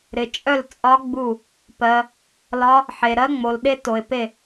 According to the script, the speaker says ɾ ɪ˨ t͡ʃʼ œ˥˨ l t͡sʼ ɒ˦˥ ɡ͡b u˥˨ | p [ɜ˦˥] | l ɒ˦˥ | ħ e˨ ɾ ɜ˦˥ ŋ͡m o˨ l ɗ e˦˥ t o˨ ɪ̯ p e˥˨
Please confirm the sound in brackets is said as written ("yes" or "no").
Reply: no